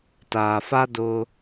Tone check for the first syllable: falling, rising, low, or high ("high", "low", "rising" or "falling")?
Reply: low